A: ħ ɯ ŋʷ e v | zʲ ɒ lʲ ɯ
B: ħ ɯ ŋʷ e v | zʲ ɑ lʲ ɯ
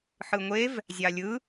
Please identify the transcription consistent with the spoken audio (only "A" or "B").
B